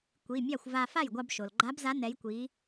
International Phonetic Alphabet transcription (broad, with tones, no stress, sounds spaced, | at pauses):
kʷ i˩˧˩ mʲ ɑ˥˩ xʷ v a˧ f a˥˩ j ɡʷ ɑ˧ b ʃ o˩ l ɡ͡ǃ a˧˥ b z a˧˥ n ɛ˧˥ j kʷ i˧˥